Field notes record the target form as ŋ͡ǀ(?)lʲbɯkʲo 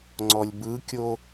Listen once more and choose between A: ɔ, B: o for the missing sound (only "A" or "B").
A